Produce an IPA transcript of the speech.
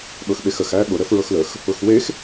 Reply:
ɠ ɤ x ɓ e x ə x æ ɠ ʊ ɾ ə f ɹ ɤ x l ə x | ʊ x w e x

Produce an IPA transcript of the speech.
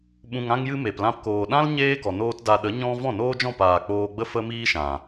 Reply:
ɓ ũ˨ ŋ ã˧ ŋ j ɨ˧ m e˨ p l ã˧ p k oː˨ ɗ ã˦ l ɲ eː˦ ɡ ɔ˨ n oː˦ t d a˧ ɗ ə˨˦ ɲ ɔ̃˦ v ɔ̃˦˨ n oː˦ d͡ʒ ɔ̃˦˨ p aː˨ k͡p oː˧ ɡ͡b ə˦ f ə˦ m iː˦ ʃ ã˨

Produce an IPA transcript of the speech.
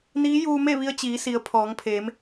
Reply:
n iː˧˥ j uː˧ m e˥˨ ʋ i˧ ə̯ t͡ɕ iː˩˧ s i˩˧ ə̯ pʰ ɔː˩˧ ŋ pʰ eː˩˧ m

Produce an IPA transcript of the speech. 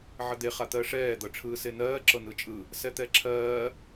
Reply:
ʕ ə d̪ e χ a t̪ ɜ ʂ ɛː d̪ ɤ ʈ͡ʂʰ ɯː s e n ɜː ǁ ɤ n ɯ t͡ʃʼ ɯ | s ɛ t̪ ɛ ǁʰ ɜː

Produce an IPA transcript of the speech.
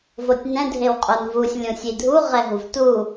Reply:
v o tʲ n ɛ̃ dʱ e w qʼ o n v u sʲ lʲ õ sʲ i dʱ u ʁ ɛ ɦ u v t u

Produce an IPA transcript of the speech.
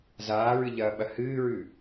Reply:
z aː ɹ ɨ ʎ ɐː ɓ ɐ h ɨː ɹ ʉ

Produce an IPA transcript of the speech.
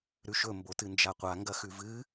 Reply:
ɾ ʉ ʃ ɵ m b o t ɨ n d͡ʒ a qʷ a ŋ ɡ ɐ x ʉ v ɨ

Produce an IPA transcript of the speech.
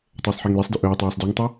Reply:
tˤ ɵː sˤ ħ e ŋ l e sˤ d ɵ ʔ ɵː tˤ aː sˤ d u ŋ tˤ o

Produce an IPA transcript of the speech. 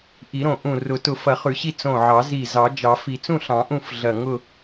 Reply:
ʔ i˨˩˦ ɾ õ˧˩ ʔ ũ˧˩ r ʊ˨˩˦ t ʊ˨˩˦ f ɐ˨˩˦ χ ʉ˨˩˦ ɕ i˥˨ t͡s õ˧˩ ʕ ɑ˨˩˦ z i˧˩ z ɑ˨˩˦ d͡ʒ ɑ˨˩˦ f i˨˩˦ t͡s ũ˥˨ ɬ ɑ̃˨˩˦ ʔ ũ˥˨ f ɮ ɐ˧˩ ŋ ʊ˥˨

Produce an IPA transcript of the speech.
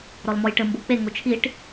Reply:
ɾ ɔ l m ɔ j ʈ ɘ m b o k͡p e ŋ o t͡ʃʰ i ʈ

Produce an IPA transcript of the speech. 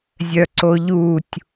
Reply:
zʲ œ ǀ o ʎ u tʲ

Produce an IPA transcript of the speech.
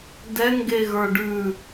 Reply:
d ɛ ŋ ɡ e ɣ ə˞ ɖ ʉ

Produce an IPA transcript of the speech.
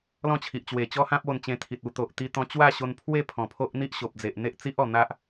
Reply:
l ɔ̃˥˧ t͡ɕʰ i˨ ʔ t͡ɕ w e˨˩ t͡ɕ ɔ˦ h ã˦ p̚ o˧ n t͡ɕ ẽ˧ t̪ʰ i˨ t̚ u˧ t̪ o˨ ʔ t̪ i˧ t̪ ɔ̃˧ t͡ɕ w a˥˧ ɕ o˧ n pʰ w e˥˧ pʰ ɔ̃˨˩ pʰ o˦ ʔ n̪ i˦ ʔ ɕ o˨ p̚ d͡z e˨ ʔ n̪ e˦ ʔ t͡s i˦ ʔ ɔ˨˩ n̪ a˦ ʔ

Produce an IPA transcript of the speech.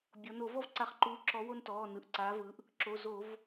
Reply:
bʲ ɔ˩˧ n o˧˩˧ v ɔ˦ v ǀ a˧˩˧ χ ǃ uː˨˥ ǁ ɔ˨˥ w o˦ n t ɔː˩˧˩ n ɯ˩˧ ʔ ǀ aː˨˥ v ɯ˨˥ ʔ | ǁ o˩˧˩ z o˧˩˧ v

